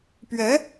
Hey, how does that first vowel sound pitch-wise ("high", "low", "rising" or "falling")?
rising